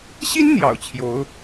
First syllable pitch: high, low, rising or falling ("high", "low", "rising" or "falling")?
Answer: high